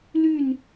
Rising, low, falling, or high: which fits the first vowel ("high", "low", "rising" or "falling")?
falling